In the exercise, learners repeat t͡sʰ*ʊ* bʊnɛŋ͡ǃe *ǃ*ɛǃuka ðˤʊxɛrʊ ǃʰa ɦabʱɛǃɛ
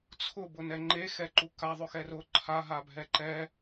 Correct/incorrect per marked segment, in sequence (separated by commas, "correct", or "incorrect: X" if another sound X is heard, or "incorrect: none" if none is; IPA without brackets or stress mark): correct, incorrect: x